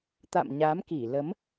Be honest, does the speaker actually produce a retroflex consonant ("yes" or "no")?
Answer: no